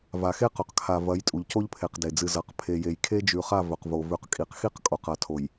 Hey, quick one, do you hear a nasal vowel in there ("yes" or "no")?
no